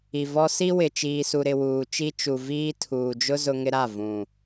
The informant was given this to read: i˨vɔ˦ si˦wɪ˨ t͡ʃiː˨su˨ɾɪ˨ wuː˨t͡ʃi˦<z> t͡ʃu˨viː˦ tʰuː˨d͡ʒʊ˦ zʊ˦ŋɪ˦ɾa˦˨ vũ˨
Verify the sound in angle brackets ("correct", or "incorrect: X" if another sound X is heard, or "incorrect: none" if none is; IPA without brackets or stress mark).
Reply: incorrect: none